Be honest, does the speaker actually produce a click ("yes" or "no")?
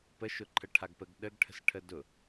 yes